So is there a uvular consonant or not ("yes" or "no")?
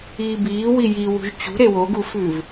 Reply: no